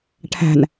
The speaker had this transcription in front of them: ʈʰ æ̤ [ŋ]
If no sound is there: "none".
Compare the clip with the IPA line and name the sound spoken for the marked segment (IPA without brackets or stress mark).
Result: n